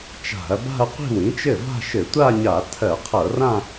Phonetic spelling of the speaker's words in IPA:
t͡ʃ a̤˧˩˧ ɐ̯ b a̤˥˧ ɐ̯ qʷ i̤˥˩ w ĩ˩˥ t͡ʃ ɘ˥˩ v a̤˥˧ ʃ ɘ˧˩˧ tʷ a˥˧ ɲ a˧˩˧ tʰ ɜ˧˩˧ qʰ ɤ˧˩˧ r ã˥˧

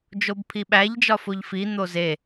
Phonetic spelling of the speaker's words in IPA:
d͡ʒ o b pʰ i ɓ æ ʎ d͡ʒ ɒ f o ʎ f i n̪ o z e

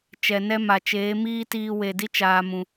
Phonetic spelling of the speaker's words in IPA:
t͡ʃ ɛ˨ n ɛ˧ m a˨ t͡ʃ eː˨˦ m iː˦ t iː˧ w e˨ d i˦ t͡ʃ aː˨ m ũ˨

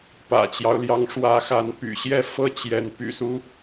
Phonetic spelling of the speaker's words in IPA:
p ä̰˨˩ t͡ɕ j ɑ˦ ʊ̯ l j ɑ˨˦ ŋ ʂ w ä˨˦ x a˨˦ n p y̰˨˩ ɕ j ɛ˥˨ f ɤ˥˨ t͡ɕ j ɛ˨˦ n p y̰˨˩ s u˦

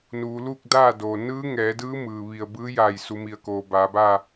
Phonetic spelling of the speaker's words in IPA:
n uː˩˧ l uː˥˨ k̚ d aː˥˨ d oː˩ n ɯː˧˥ ŋ ɛː˩˧ d ɯː˧˥ m ɯː˩ ʋ i˧˩ ə̯ b ɯː˧˥ j a˧˩ j s u˩˧ m i˩ ə̯ k oː˩ b aː˩˧ b aː˥˨

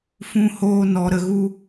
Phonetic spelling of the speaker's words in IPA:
f ũ˦ h oː˦ n ɔ˧ ɾ ə˧ ɣ u˦

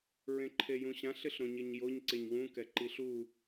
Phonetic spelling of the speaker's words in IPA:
ɹ ẽ ǃʰ e j ũ ɕ ã ɬ ɪ ɬ ɾ õ ɲ ɪ ɲ j o ɲ ǀ e ɲ w ũ k ɛ ǃ i ɬ u

